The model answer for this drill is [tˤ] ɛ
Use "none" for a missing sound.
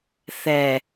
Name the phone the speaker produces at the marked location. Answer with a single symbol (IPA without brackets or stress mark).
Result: θ